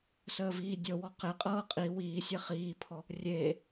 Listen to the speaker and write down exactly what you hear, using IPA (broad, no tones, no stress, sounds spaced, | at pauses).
s əː v iː dʲ ɤ w ɔ q e qʼ ɤː qʼ i w iː sʲ e χ iː pʰ ɔ | rʲ eː